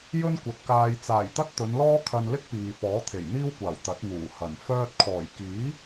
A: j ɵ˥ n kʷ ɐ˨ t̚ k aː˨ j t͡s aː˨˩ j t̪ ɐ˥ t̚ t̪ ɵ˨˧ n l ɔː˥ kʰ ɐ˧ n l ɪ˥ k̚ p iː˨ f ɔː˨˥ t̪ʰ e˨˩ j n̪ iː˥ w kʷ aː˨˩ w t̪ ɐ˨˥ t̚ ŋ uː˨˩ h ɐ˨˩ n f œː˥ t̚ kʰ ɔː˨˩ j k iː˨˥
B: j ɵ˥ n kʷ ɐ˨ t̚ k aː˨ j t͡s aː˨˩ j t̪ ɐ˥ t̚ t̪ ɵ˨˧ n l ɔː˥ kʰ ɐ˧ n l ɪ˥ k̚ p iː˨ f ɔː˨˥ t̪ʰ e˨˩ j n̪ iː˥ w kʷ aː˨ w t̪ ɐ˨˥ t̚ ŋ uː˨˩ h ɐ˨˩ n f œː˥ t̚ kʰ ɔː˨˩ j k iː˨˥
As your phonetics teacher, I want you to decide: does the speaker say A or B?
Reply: A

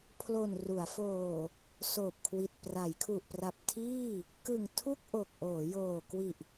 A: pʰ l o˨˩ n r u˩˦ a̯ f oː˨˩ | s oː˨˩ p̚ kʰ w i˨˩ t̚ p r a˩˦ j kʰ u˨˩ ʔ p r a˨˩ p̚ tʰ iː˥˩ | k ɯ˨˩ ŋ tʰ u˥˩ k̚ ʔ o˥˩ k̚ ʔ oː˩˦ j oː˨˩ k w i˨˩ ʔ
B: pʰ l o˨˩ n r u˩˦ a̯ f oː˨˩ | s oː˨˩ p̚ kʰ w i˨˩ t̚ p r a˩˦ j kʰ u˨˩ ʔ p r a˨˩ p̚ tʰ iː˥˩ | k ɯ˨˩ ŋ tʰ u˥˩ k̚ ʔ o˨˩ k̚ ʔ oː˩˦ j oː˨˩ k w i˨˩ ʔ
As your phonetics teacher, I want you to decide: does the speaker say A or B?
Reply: B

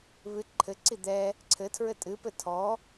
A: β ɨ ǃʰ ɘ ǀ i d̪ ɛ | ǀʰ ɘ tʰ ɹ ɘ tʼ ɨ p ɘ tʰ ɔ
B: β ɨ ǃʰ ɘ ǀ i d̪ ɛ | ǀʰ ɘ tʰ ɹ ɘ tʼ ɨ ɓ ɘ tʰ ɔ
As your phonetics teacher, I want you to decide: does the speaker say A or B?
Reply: A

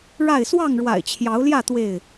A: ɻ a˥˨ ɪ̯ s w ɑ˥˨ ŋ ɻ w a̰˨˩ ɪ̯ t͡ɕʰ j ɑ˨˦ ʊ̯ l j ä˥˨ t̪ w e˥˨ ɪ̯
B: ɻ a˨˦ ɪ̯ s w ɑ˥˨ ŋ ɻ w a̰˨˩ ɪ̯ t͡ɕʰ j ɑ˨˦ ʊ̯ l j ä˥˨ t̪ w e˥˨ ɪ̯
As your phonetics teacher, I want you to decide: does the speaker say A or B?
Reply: A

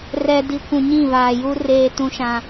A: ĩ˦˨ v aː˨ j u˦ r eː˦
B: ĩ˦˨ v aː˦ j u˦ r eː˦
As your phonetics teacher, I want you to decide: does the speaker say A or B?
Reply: A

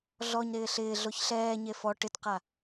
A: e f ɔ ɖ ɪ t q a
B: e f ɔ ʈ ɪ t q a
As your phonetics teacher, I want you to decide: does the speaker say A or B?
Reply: B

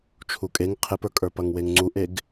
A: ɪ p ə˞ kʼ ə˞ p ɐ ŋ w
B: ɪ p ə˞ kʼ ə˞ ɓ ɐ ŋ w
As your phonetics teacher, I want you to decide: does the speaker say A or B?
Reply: A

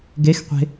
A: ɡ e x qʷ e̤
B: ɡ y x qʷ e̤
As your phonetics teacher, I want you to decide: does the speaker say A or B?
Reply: A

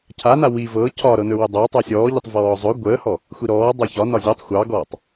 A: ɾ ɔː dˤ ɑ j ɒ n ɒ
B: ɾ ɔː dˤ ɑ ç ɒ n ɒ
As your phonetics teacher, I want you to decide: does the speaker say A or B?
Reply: B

